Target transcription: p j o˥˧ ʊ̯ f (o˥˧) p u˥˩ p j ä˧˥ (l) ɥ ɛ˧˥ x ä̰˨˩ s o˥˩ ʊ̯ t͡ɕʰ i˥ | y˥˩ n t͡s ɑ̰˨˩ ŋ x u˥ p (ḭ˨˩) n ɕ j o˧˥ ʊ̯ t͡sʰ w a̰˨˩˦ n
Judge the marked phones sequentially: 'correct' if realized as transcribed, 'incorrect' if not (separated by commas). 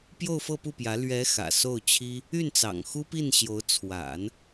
incorrect, correct, incorrect